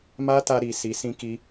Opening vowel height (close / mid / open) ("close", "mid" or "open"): open